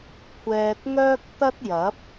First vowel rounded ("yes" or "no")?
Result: no